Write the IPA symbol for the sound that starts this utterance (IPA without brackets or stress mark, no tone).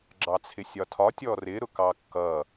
ɡ͡ǁ